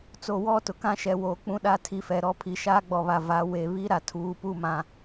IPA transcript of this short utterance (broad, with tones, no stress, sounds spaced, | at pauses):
t͡s o˨ w ɔ˦˨ t ʊ˨ k ã˦ ʃ ɛ˨ w oː˨ k͡p ũ˦ ɗ a˦˨ tʰ i˨ f ɛ˨ ɾ ɔ˦ pʰ i˨ ʃ aː˦ ɡ͡b ɔ˨ β a˨ v a˨˦ w e˨ β i˦ ɾ a˨ tʰ uː˨˦ p u˦˨ m ã˨